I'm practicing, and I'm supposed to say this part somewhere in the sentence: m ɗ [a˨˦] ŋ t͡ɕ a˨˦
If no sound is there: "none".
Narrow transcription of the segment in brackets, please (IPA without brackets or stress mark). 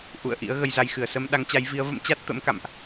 a˨˦